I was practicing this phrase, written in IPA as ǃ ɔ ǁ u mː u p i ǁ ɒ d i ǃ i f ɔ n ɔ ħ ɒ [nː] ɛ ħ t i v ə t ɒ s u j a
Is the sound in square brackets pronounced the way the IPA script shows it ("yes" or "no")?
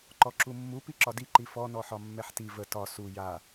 no